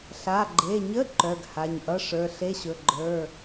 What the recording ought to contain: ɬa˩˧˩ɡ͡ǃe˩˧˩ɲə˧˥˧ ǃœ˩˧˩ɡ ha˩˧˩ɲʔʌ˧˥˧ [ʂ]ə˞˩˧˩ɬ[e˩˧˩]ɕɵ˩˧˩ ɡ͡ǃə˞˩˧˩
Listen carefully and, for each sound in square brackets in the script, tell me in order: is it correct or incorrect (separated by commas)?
correct, incorrect